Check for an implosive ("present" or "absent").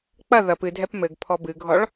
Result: absent